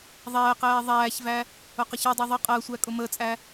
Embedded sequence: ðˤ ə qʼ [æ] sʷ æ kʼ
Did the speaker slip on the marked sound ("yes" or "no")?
yes